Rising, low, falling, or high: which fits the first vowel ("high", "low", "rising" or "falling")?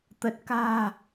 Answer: low